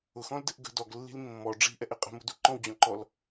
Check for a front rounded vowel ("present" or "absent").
absent